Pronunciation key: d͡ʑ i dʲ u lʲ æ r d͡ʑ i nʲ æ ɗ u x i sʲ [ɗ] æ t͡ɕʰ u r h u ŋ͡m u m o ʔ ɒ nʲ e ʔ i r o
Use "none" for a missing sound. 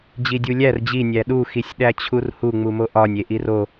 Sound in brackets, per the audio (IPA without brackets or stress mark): ɗ